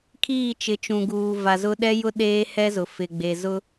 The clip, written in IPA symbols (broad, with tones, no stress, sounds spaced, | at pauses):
kʰ iː˦˨ t͡ʃ ɪ˨˦ t͡ʃ ũ˨ ɡ uː˨ v a˨ z ʊ˦ ɗ ɛ˦ j ʊ˦ ɗ eː˦ h ɛ˦ z ʊ˨ f ɪ˨ ɡ͡b e˨ z ʊ˦